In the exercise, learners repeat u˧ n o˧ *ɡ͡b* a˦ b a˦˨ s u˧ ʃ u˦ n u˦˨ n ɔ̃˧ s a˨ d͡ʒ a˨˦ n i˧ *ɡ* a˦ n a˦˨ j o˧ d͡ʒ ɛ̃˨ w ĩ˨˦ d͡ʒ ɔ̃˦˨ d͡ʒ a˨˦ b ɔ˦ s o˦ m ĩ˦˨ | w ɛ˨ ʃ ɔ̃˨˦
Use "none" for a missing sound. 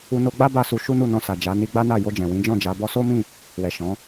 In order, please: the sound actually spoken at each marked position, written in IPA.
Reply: ɡ͡b, ɡ͡b

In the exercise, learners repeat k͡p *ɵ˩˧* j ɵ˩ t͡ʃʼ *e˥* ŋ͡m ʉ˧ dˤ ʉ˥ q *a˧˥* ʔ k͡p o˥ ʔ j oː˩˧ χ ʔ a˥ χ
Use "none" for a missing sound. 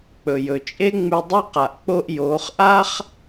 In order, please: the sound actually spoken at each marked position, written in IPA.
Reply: ɵ˩, e˥, a˩

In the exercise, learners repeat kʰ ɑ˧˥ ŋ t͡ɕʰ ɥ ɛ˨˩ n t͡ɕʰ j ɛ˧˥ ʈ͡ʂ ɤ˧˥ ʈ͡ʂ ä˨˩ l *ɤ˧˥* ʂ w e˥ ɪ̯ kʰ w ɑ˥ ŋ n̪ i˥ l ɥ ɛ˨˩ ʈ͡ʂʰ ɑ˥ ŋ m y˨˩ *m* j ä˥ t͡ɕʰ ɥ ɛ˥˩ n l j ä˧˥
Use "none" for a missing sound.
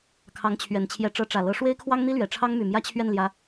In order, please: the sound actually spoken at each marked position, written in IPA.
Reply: ɤ˧˥, m

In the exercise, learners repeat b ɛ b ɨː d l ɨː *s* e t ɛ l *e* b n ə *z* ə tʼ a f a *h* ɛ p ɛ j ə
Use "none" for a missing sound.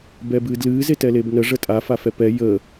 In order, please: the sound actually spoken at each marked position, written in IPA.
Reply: z, e, ʐ, f

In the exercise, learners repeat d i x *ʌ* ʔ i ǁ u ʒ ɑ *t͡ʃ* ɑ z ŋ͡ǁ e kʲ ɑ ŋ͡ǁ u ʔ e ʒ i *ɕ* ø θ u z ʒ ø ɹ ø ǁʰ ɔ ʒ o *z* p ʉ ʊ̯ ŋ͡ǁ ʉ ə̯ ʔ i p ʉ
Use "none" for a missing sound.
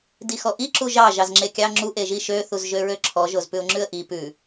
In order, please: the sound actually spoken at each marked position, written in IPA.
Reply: ɔ, ʒ, ʃ, z

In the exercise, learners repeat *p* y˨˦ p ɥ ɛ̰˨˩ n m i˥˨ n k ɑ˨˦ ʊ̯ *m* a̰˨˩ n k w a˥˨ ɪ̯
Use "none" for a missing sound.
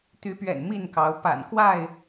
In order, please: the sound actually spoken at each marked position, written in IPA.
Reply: t̪, p

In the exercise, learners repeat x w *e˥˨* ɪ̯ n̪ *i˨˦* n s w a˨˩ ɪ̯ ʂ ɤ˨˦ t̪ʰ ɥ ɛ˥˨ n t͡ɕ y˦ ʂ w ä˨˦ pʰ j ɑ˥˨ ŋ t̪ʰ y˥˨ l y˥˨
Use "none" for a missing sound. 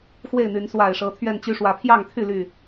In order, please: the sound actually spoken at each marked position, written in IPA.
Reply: e˥˨, y˨˦

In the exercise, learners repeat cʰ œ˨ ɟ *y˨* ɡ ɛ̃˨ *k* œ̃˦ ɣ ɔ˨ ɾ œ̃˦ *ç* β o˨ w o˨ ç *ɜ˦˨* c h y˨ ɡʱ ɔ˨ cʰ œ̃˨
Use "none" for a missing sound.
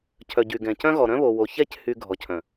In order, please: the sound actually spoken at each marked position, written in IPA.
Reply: y˨, c, none, ɛ˦˨

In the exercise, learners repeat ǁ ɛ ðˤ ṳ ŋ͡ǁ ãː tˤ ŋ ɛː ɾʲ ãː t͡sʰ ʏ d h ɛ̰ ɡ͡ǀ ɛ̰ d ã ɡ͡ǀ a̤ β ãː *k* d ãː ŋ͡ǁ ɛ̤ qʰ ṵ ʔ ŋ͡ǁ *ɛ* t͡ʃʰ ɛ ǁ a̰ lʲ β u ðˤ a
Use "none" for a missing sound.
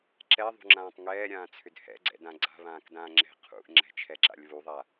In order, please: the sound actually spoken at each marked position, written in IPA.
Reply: k, ɛ̤

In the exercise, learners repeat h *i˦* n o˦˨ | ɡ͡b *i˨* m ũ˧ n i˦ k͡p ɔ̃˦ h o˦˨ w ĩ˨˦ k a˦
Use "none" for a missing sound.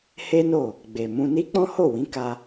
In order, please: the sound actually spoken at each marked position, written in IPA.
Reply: e˦, e˨

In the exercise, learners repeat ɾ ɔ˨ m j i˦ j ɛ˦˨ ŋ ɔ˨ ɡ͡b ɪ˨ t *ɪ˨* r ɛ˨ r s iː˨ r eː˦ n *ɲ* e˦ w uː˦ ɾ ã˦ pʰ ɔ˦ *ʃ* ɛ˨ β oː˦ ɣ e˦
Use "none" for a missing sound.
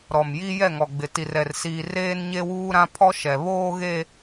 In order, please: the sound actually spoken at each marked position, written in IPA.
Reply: i˨, ɲ, ʃ

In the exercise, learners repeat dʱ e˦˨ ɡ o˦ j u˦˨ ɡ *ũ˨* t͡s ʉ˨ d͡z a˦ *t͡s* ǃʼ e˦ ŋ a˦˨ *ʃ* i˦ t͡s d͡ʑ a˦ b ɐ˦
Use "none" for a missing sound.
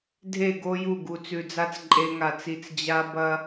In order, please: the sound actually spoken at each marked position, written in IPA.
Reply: u˨, t͡s, t͡s

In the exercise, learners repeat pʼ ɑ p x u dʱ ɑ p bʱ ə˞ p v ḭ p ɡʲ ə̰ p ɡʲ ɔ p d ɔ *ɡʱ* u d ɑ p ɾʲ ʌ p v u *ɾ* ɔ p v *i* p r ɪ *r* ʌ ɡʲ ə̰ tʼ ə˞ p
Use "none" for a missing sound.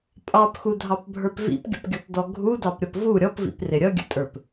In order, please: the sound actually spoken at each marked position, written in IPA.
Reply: ɡʱ, ɾʲ, ḭ, ɾʲ

